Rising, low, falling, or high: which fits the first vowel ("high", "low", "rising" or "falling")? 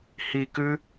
low